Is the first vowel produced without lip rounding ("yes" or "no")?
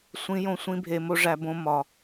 yes